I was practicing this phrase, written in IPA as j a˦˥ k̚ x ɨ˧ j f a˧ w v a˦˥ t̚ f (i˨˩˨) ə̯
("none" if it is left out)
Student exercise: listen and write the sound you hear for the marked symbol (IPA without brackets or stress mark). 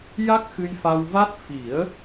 i˨˩˦